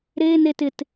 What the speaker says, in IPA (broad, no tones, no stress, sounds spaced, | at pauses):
ɾ e n e t ɪ t